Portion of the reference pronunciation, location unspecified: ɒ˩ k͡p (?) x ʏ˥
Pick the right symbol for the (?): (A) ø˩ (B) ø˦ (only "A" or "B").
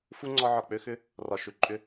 B